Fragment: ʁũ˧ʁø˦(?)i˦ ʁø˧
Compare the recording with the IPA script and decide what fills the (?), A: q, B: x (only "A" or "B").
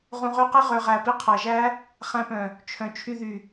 A